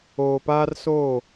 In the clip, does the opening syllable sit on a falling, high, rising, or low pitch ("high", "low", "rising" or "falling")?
low